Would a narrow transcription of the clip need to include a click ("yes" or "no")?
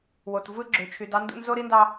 yes